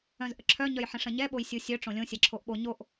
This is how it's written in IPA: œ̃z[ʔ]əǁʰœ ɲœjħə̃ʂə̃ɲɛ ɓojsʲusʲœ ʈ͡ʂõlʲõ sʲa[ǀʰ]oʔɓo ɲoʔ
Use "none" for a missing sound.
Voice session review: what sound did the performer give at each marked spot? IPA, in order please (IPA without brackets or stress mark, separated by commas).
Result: ʔ, ǁʰ